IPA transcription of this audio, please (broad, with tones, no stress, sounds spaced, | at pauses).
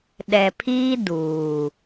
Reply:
ɗ ɛ˨ pʰ iː˦ d uː˨